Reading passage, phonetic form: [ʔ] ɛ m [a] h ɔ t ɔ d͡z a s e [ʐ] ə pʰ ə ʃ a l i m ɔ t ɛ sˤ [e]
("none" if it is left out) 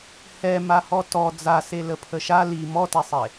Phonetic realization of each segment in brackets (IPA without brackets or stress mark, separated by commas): h, a, l, e